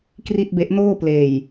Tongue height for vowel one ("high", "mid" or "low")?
high